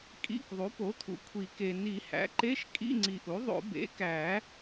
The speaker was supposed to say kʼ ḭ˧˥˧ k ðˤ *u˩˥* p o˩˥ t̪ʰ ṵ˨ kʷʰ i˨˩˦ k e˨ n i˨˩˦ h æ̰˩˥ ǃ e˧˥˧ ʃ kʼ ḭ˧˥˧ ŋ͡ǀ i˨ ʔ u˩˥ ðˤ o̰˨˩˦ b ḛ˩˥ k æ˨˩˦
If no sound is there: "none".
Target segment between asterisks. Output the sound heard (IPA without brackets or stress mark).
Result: u˩˥